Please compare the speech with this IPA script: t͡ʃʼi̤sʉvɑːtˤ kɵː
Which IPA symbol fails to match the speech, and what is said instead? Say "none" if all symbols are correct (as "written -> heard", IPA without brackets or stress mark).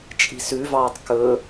none